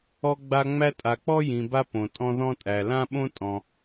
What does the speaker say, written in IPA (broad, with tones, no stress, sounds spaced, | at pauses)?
ɔ˦ ɡ͡b a˦ ŋ͡m æ˥ tʼ a˨ k͡p ɔ˥ j ĩ˨ b a˥ p õ˩ tʼ ɔ̃˦ ð ɔ̃˥ tʼ æ˩ l ã˥ ɓ õ˥ tʼ ɔ̃˨